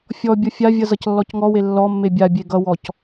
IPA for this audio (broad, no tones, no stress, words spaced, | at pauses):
fʲɔbʲʌ fʲavʲʌ zʌclːɔcŋɔwe lːɔmːe bʲabʲe ɡʌwɔc